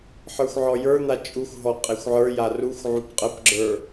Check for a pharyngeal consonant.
present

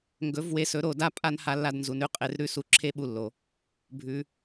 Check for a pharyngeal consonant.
absent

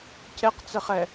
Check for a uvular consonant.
present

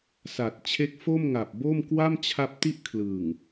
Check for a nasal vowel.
absent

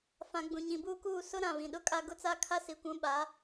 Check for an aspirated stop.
present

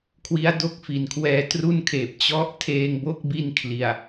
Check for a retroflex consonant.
absent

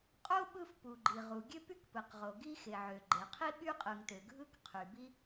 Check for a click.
present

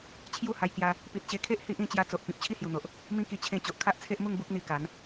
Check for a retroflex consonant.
absent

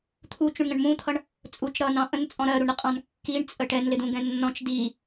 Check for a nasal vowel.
present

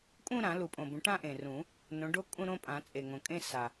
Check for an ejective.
present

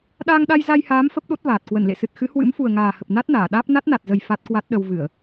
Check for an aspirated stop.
absent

